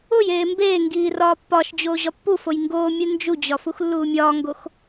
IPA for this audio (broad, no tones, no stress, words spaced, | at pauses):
oj eːmbeːŋɡiː rɒːpːɒʃd͡ʑoː ʑɒpːufoj ŋɡoːmʲu nd͡ʒud͡ʑɒ fuxlːuːmʲɒːŋɡox